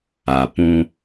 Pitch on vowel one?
low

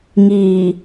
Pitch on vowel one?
low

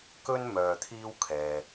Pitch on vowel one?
high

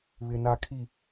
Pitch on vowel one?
low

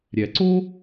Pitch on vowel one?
low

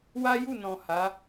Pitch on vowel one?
high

